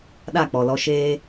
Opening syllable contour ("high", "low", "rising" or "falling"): falling